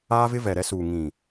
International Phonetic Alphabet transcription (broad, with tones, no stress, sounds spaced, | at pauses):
aː˦ v ɪ˦ v ɛ˨ ɾ ɛ˦ s uː˨ ŋ ĩ˨